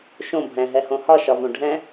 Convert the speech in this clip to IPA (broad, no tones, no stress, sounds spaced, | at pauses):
ʃ õ bʱ ɛ̃ ɦ ɛ h õ h ɒ ʃ ɒ v õ ɖʱ ɛ̃